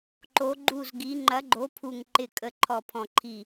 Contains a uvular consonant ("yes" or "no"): no